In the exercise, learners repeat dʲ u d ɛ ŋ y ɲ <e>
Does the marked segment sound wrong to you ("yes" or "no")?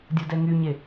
no